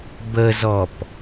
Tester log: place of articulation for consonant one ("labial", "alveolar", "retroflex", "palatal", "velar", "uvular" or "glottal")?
labial